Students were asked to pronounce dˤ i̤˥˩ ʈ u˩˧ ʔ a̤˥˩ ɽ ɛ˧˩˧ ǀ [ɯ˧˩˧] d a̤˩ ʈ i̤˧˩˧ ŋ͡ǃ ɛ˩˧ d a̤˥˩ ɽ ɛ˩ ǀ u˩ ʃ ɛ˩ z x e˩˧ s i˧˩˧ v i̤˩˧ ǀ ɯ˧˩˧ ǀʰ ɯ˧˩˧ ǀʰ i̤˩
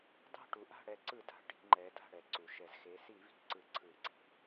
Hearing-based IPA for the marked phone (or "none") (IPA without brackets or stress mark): ɯ˧˩˧